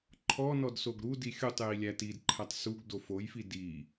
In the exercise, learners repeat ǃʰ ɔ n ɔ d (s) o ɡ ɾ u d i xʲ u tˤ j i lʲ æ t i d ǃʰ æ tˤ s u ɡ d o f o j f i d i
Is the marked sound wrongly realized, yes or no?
no